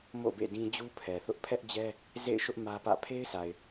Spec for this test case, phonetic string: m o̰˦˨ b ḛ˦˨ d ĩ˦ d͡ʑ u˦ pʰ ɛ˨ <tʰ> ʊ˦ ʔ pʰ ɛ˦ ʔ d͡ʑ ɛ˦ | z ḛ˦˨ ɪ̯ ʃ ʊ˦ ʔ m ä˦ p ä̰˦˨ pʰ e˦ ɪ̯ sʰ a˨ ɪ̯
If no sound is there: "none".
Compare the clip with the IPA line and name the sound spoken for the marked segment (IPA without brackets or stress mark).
θ